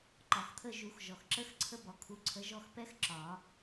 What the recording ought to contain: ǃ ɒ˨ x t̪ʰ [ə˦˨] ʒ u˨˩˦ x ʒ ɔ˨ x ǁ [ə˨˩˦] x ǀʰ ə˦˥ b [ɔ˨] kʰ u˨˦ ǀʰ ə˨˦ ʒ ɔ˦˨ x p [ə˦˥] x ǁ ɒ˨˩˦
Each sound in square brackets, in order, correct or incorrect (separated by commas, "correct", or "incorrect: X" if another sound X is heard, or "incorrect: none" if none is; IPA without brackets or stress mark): correct, incorrect: ə˦˥, correct, incorrect: ɛ˦˥